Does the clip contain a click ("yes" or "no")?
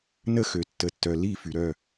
no